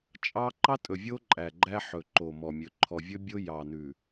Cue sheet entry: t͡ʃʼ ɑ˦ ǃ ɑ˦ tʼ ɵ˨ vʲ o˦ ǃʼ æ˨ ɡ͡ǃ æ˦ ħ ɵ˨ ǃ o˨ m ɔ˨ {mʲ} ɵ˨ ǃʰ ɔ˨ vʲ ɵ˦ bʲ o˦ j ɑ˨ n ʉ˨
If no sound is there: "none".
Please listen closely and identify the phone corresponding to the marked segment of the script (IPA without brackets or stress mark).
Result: mʲ